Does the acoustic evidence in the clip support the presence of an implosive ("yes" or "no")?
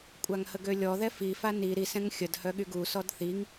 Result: yes